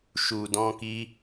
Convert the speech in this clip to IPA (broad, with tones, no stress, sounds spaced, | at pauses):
ʃ u˨ d ɔ̃˧ k i˦